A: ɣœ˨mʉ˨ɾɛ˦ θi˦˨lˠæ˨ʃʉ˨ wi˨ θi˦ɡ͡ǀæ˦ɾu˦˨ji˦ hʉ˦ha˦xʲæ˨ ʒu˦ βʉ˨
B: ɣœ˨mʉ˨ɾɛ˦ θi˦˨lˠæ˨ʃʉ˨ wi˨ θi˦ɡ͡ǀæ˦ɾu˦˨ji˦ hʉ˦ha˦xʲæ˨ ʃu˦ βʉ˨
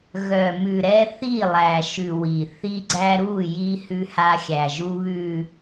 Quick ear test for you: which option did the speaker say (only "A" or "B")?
A